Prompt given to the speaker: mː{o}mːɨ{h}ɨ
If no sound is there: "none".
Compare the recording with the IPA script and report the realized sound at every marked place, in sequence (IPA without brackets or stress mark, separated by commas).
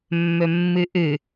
ɵ, ʔ